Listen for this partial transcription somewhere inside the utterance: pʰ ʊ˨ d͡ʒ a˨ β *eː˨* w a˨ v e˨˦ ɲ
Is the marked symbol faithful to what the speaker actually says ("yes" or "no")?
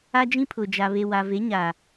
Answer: no